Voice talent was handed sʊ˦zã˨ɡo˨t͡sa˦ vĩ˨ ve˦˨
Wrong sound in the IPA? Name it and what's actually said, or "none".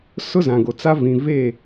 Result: none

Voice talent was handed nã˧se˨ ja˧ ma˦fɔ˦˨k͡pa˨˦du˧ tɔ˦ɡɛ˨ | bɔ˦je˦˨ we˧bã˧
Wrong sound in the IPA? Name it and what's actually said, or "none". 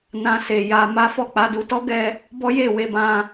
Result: ɛ˨ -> ɛ˧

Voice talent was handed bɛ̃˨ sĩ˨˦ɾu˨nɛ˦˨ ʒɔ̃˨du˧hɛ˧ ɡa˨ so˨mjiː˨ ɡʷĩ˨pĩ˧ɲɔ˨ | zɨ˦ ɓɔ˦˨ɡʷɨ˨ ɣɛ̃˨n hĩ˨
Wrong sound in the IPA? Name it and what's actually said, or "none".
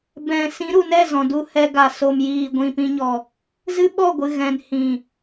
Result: ʒ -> z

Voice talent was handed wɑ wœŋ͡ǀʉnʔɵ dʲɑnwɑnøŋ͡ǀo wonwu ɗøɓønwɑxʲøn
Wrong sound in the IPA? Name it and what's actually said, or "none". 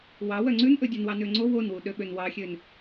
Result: none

